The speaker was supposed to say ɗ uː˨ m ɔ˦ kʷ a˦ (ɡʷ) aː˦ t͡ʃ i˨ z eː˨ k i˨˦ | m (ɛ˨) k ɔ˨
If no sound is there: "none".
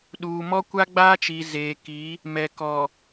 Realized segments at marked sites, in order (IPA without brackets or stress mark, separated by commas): ɡ͡b, ɛ˨